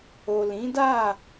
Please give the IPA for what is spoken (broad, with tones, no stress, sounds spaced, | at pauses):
o˨ l ĩ˨˦ d a˦˨